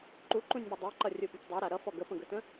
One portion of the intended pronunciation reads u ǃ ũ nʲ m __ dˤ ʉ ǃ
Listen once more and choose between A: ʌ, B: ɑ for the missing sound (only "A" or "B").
A